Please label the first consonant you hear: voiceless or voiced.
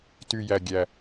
voiceless